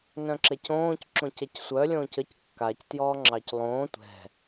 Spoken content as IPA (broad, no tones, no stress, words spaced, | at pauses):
nœ̃ǁɛcõːc ǁõcɛcsʷœ lʲõːcəc kːac tjɔːŋ͡ǁɑclˠõː tʷɛ̤